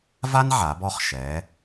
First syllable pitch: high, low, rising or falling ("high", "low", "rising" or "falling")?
high